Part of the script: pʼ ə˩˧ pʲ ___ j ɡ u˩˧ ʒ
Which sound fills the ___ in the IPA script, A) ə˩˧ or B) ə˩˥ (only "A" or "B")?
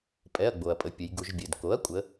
A